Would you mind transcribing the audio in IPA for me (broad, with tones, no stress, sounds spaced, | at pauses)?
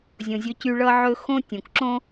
zʲ õ˩ zʲ ɵ˧ c y˧ ɭ ʌ˧ ʕ ɵ˧ x õ˥ tʲ õ˩ k ǁ õ˥